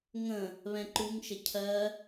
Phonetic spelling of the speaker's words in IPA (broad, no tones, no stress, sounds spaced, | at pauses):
ŋ ə̃ | β ɛ̃ ǃ u ŋ ʃ ə cʰ ɜ